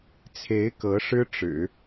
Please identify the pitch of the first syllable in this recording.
rising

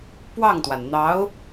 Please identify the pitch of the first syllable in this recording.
falling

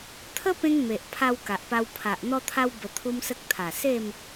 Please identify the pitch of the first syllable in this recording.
high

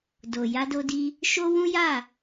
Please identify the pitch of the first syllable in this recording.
low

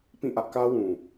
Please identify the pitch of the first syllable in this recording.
falling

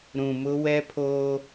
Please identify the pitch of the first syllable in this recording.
low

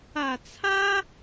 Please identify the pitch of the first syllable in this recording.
low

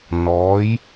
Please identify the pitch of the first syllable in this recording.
rising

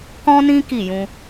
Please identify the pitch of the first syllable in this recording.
high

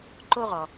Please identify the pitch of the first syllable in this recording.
high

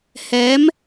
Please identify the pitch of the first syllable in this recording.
rising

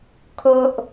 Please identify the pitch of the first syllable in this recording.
low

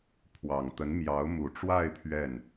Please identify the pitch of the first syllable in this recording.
low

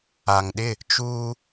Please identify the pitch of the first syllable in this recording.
low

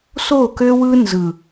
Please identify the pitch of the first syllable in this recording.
falling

